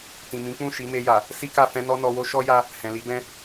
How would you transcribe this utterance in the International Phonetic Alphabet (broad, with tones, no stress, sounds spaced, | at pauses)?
t ĩ˨ m ĩ˨˦ k͡p ũ˦˨ ʃ i˨˦ m e˧ j a˨ | s i˦ k a˦˨ f ɛ̃˧ n ɔ˧ n ɔ˧ w o˦ ʃ ɔ˦ j a˧ | h ɛ̃˨ l i˨˦ b ɛ̃˧